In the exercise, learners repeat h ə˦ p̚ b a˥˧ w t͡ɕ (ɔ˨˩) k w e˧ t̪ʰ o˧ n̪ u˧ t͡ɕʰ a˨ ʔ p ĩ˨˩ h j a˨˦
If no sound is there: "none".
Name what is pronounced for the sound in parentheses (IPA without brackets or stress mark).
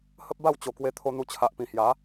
o˨˩